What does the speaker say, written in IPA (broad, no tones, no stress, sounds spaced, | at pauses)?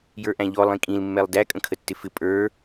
j ə˞ ʔ æ̃ ʎ ɔ lˠ ĩ kʼ ĩ l mː ɛ lˠ d æ kʼ ə̃ kʰ ə tː ɪ f ɪ pʼ ə˞